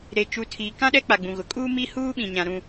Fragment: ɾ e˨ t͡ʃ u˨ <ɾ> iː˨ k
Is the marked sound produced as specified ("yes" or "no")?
no